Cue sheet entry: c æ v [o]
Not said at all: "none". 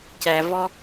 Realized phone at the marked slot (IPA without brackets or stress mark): ɔ